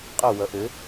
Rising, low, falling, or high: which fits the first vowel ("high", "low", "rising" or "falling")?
falling